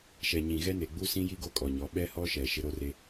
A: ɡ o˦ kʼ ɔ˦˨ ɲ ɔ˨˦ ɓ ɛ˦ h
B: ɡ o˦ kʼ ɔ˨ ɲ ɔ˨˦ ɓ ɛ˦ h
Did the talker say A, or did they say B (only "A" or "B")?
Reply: B